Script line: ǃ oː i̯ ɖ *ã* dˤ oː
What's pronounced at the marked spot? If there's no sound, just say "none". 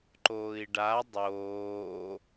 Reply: a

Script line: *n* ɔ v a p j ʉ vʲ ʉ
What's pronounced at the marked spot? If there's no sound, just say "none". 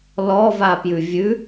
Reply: l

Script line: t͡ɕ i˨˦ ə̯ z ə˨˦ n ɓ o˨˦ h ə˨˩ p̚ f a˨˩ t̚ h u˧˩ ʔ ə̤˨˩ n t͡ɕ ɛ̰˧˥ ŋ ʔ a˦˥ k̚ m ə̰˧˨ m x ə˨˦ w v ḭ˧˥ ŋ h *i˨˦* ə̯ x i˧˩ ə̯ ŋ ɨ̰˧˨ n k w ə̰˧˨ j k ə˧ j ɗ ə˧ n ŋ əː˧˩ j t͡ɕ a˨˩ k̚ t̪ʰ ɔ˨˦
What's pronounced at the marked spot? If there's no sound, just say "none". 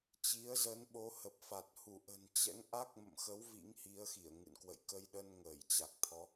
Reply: i˨˦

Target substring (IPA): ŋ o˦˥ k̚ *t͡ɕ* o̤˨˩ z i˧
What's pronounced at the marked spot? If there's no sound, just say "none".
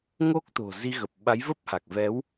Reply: t̪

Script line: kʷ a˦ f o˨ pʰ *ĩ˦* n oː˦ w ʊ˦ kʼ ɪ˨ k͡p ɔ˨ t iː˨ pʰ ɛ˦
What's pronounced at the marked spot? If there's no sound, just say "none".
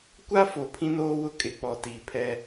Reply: ĩ˦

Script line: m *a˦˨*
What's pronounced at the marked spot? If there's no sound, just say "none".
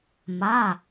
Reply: a˩˧˩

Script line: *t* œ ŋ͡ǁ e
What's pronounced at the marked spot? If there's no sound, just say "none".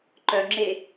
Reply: ǃ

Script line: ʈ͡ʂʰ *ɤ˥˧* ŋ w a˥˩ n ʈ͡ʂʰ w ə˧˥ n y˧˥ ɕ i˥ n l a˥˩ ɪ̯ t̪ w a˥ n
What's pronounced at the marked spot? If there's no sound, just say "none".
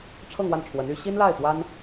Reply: ɤ˥˧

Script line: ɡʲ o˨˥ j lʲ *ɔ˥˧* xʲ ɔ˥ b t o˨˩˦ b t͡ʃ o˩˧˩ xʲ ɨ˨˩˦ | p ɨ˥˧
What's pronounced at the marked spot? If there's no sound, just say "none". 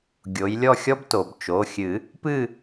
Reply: ɔ˥˧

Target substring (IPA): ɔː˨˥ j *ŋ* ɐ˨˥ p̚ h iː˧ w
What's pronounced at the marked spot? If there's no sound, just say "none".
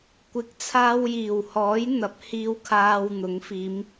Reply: n̪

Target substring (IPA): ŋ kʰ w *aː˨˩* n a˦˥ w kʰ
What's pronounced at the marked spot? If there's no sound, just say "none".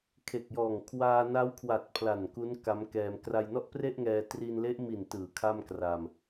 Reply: aː˧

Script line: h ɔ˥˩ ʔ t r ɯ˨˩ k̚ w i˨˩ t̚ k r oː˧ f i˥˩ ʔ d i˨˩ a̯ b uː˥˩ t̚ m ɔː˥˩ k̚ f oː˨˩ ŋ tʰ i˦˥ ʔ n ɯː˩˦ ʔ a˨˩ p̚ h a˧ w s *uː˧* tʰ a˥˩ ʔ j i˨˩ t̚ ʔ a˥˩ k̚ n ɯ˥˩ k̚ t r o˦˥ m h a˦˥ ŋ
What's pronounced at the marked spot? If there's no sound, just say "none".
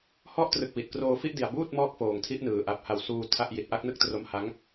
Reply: uː˧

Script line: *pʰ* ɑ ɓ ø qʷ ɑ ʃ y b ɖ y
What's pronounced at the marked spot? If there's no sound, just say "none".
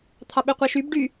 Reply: t̪ʰ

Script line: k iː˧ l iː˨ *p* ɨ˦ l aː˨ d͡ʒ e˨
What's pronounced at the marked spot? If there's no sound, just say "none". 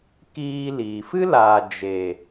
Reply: f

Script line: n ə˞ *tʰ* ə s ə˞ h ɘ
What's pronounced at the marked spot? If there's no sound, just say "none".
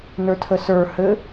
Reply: tʰ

